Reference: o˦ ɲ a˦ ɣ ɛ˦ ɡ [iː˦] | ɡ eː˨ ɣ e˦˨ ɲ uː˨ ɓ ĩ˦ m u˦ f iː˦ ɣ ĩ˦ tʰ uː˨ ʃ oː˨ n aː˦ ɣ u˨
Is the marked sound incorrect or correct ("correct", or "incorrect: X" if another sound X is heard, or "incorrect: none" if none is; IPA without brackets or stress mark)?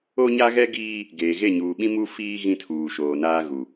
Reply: correct